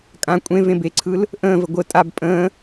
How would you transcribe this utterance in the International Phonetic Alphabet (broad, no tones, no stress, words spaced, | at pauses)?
kʼã kʷʼẽ vẽbeǀʰɯl | ʔə̃ːvə ɡʷə tʼab pʼə̃ː